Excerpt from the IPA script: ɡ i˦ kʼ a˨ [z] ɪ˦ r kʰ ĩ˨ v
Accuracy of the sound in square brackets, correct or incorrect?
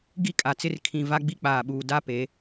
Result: incorrect